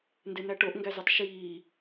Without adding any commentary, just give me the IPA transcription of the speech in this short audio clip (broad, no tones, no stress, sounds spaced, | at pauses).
n d e n̪ æ ʈ o ʔ ŋ ɡ æ z u tˤ ʃ iː